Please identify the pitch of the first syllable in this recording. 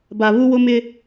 low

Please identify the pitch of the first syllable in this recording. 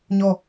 falling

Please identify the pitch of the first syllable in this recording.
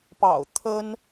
low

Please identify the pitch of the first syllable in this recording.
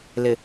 low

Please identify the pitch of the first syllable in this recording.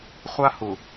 high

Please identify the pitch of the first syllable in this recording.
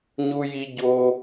high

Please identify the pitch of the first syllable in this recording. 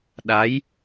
rising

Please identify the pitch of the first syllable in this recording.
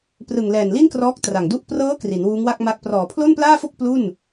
low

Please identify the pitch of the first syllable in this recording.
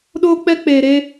high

